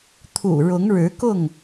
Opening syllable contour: low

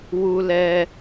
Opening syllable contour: high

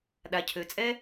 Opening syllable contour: low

